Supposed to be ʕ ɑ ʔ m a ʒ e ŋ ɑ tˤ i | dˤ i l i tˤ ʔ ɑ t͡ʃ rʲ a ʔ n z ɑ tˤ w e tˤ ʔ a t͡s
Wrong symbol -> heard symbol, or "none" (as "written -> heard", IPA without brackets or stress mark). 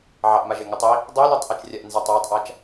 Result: t͡s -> t͡ʃ